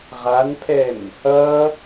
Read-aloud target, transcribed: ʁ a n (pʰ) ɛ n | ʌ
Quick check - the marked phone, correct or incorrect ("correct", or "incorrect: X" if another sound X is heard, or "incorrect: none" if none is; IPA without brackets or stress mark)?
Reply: correct